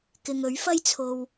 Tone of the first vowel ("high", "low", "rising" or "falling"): low